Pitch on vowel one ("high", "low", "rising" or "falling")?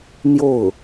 falling